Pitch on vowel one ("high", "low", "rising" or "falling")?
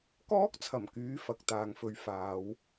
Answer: high